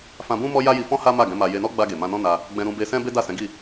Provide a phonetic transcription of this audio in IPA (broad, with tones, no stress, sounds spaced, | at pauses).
f ã˧ b ũ˦ m ɔ˦ j a˦ j i˧ f ɔ̃˦ h a˦ m a˦˨ ɡ ɛ̃˨˦ m a˧ j e˧ n ɔ˦ ɡ͡b a˧ ɡ e˨ m ã˧ n ɔ̃˦ n a˧ | ɡ͡b ɛ̃˧ ɾ ũ˧ b e˧ s ɛ̃˦ b e˦ d a˦˨ s ɛ̃˨˦ ɡ i˦˨